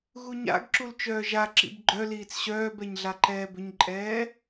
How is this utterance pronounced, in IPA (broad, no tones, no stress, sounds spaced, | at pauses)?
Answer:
ɣ u ɲ a̰ ɡ ǁ u l t͡ʃ œː ʒ a ǁ ḭ b ɡ͡ǃ œ l iː t͡s ɕ œː b ɛ ɲ ɮ a ǃ ɛː b ʏ ɲ ǃʼ ɛː